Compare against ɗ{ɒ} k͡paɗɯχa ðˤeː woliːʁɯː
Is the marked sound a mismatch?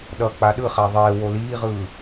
yes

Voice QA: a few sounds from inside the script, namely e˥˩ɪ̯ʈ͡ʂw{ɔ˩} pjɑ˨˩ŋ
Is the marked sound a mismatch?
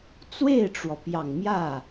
no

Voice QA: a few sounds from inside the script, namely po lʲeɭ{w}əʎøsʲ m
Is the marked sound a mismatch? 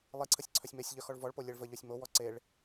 yes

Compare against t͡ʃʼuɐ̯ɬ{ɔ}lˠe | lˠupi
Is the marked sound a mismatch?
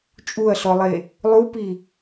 no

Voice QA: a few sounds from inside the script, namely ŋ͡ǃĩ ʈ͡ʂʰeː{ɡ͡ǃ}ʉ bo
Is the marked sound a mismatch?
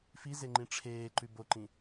yes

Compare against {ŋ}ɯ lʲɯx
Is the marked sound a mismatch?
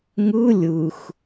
no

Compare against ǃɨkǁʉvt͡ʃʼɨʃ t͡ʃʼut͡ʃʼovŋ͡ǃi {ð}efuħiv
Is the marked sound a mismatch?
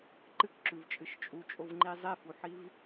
yes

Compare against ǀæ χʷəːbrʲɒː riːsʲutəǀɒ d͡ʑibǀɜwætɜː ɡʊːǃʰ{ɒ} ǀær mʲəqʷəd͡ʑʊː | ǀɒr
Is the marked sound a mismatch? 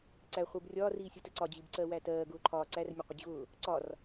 yes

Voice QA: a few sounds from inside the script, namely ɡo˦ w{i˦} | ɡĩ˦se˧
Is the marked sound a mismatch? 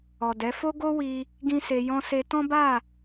no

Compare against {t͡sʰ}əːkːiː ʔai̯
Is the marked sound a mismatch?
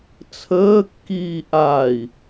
no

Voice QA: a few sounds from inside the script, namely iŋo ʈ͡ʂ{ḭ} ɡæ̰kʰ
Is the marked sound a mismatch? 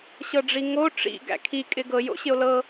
no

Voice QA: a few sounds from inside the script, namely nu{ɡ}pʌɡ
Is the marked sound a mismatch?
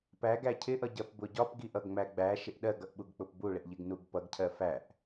no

